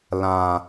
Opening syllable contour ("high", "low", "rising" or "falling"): low